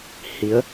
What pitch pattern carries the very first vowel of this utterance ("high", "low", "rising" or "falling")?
rising